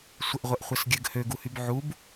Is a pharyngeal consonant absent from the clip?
no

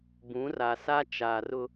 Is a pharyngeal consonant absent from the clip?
yes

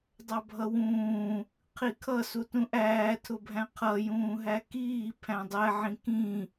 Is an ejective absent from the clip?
yes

